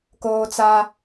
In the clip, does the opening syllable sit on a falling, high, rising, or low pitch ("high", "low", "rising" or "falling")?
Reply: high